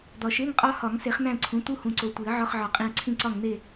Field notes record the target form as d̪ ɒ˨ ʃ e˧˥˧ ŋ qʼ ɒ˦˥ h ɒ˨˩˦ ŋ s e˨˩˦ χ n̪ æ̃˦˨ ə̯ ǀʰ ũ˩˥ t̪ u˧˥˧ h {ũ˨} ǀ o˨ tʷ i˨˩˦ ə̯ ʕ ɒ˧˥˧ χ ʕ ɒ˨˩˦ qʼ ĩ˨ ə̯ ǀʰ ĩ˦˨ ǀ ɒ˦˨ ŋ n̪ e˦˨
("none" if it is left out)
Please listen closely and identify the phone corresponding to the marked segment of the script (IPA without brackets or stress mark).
ũ˨